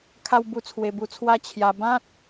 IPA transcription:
kʰ a˦ w b u˦ t͡sʰ w e˧ b u˧ t͡sʰ w a˦ t͡ɕʰ j a˧ b ã˦ t̚

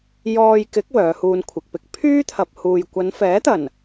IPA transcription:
j ɔː˧ j k ɪ˨˥ k̚ w œː˨˧ h uː˧ n kʷʰ ɪ˨ k̚ p ɪ˥ k̚ pʰ yː˥ t̪ʰ ɐ˨ p̚ h uː˨ j kʷ ɐ˨˧ n f ɛː˨˥ t̪ ɐ˨˩ n

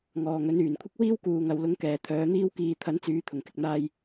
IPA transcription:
ŋ ɔː˨ ŋ ɵ˨˥ n yː˨˩ n kʷʰ ɪ˥ k̚ w iː˥ w k uː˨ ŋ ɐ˧ w l ʊ˧ ŋ k ɛː˨ t̪ʰ œː˨˥ n̪ iː˥ w k iː˧ t̪ʰ ɐ˨˥ n t͡s yː˨˧ t̪ʰ ʊ˨˩ ŋ k ɪ˨ k̚ n̪ aː˧ j

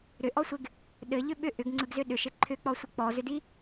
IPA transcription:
ɾ ʏ ʔ ɔ sʷ ɪ ɡ | ɗ ɘ ʎ ʏ ɓ ʏ ʔ ʏ ɡ ŋ͡ǀ ɯ ɡ z ʏ ɗ ʏ ʃ ɪ ǃʰ ʏ k͡p ɔ sʷ ɪ k͡p ɔ z ʏ d i

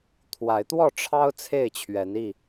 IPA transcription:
t̪ʰ w a˨˦ ɪ̯ t̪ w ɔ˥˨ ʈ͡ʂʰ ɑ˦ ʊ̯ t͡sʰ e˥˨ ɪ̯ t͡ɕʰ ɥ ɛ˨˦ n i˥˨

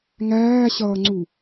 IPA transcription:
ŋ æː ɕ ʌː ŋ͡ǀ u

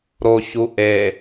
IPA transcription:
ɾ o ç u ʔ e

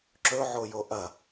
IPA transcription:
ǁ ɵ ʕ o j o ʔ ɐ

